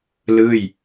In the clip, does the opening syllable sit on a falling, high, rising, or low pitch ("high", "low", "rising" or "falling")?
falling